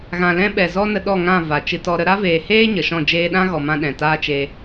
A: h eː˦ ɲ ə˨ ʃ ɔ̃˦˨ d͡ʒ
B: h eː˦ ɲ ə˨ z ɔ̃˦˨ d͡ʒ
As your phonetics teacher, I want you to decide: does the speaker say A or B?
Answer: A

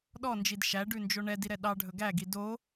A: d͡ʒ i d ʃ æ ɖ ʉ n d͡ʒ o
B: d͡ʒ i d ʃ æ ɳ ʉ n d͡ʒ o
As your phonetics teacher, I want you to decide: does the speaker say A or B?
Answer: A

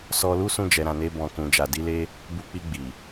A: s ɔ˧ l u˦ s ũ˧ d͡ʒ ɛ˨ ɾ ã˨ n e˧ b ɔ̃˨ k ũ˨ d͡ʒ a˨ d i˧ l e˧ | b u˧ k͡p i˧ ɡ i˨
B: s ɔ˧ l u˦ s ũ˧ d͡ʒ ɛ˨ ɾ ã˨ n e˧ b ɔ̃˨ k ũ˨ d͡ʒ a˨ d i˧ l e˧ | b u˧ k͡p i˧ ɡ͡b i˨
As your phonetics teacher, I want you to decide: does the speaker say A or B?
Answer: B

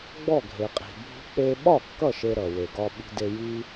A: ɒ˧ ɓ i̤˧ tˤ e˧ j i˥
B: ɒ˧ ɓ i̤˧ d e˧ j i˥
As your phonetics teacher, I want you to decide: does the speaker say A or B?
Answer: B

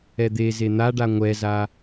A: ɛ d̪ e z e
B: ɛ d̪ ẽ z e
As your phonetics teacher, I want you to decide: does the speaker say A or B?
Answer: A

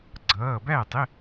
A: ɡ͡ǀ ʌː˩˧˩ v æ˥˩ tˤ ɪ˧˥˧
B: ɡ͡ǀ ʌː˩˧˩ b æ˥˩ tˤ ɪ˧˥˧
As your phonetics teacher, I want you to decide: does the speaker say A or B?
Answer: B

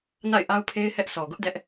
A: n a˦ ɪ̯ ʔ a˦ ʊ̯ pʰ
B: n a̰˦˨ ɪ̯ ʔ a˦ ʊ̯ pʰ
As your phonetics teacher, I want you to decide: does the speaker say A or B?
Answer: B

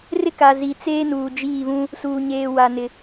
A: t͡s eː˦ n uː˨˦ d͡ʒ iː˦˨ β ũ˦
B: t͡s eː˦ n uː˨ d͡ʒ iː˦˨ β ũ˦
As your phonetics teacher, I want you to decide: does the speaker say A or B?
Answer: B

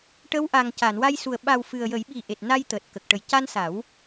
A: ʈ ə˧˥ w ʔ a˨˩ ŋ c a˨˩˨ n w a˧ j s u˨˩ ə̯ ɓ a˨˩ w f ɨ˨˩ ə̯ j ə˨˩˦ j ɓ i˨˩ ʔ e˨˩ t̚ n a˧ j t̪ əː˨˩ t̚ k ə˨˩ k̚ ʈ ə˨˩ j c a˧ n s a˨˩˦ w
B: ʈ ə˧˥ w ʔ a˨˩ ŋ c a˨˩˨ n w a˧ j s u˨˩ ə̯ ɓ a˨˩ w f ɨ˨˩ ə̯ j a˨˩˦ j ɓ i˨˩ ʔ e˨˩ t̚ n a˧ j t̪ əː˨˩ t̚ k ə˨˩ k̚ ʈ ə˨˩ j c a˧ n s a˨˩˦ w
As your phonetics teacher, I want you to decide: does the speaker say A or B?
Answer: A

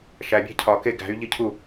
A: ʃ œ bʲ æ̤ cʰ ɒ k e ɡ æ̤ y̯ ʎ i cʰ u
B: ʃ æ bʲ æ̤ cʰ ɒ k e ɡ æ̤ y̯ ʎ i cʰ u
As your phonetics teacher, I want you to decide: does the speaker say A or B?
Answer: B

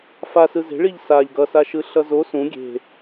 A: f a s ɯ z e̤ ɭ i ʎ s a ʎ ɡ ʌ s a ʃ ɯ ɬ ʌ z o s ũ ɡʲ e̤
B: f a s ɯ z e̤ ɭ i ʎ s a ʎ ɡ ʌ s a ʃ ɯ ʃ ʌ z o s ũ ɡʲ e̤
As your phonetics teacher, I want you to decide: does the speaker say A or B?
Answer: A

